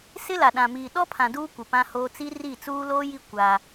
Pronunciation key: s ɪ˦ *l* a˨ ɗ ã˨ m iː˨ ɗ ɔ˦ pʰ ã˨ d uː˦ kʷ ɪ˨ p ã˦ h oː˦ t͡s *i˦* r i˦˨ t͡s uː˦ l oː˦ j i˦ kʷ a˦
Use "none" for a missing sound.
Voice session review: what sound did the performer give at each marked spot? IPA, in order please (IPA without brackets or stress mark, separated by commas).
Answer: l, i˦